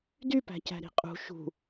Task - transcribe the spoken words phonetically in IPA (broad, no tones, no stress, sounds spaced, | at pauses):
d y p æ̤ c æ̤ ɾ i̤ qʼ ṳ ʃ ṳ